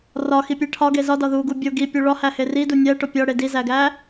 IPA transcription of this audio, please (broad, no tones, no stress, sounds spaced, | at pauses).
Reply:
r ɒ x i pʲ e ʈʰ ɒ ɡ e z ɒ d ɒ ð u ɡ u bʲ o ɡ i pʲ u ɭ ɒ h æ h e r i d u nʲ æ ʈ o pʲ ɒ ɽ e d i z æ ɡ æ